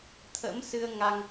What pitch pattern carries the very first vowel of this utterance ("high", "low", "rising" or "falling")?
rising